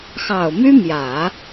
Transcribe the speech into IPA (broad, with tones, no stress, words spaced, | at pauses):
xɑ˨˩ʊ̯my˥mjä˨˩˦